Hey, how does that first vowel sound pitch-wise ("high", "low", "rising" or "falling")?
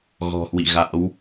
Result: low